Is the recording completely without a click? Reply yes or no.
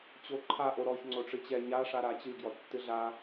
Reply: no